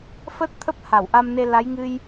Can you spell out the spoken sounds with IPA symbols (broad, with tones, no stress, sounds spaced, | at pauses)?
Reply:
f ə˦˥ t̚ t̪ʰ ə˦˥ p̚ h a˧˩ w ʔ a˧ m n e˧ l a˨˦ j ŋ ɨ˧ j